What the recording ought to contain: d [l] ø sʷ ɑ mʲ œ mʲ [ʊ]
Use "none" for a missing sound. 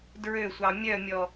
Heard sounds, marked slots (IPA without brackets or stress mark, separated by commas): ɹ, ɔ